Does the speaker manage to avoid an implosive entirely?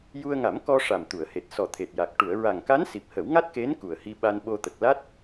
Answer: no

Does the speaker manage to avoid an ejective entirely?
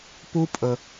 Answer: no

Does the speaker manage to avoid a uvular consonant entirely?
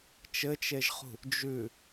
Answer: no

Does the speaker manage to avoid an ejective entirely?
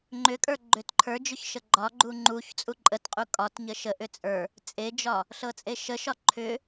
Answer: no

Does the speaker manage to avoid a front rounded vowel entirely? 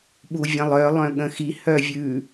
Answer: no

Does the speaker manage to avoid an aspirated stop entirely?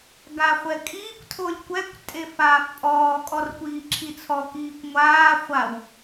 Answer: no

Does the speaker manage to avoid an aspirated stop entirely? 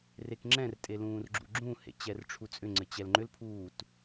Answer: no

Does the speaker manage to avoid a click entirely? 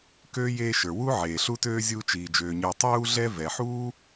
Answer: yes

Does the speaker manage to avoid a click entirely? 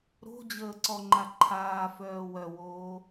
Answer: no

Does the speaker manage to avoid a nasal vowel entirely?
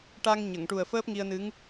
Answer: yes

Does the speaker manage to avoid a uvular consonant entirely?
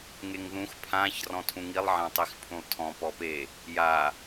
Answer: yes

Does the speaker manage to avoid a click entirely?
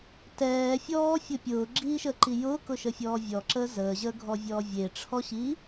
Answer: no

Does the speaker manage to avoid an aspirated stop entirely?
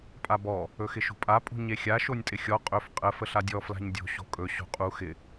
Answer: yes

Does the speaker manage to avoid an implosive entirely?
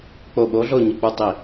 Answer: no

